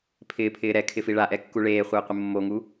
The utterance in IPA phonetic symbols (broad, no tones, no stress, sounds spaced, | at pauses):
pʰ ɪː pʰ ɪː ɾ ɛ kʰ ɪ f i ɭ a ʔ ɛ kː u ɭ eː χʷ ɪː qʷ ɪ mː o ŋ u